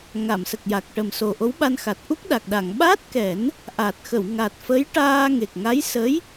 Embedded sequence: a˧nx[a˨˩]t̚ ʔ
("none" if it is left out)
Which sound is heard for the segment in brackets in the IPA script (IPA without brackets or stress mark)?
a˨˩